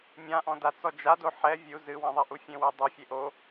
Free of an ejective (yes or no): yes